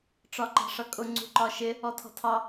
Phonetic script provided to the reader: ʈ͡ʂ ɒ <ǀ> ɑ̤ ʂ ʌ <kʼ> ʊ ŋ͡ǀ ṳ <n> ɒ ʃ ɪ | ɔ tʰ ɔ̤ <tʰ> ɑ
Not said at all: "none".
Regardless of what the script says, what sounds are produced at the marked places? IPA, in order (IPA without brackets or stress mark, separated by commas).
ǃ, kʼ, ǃ, tʰ